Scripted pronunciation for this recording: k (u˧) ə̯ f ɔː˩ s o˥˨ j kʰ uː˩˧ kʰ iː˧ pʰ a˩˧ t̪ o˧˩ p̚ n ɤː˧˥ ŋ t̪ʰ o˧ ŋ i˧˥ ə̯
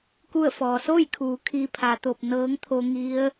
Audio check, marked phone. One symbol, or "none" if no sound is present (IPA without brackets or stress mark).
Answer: u˥˨